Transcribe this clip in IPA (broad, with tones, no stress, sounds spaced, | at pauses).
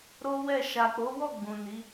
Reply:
ɾ o˦ w ɛ˦˨ ʃ a˨ k͡p o˨˦ w ɔ˦˨ ɡ͡b ũ˨ n i˨˦